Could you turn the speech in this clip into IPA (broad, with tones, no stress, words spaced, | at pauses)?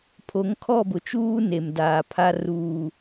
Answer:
pʰo˨˦ŋkʰɔ˦˨bʊ˨t͡ʃuː˦ ne˨m daː˨pʰa˦ ruː˨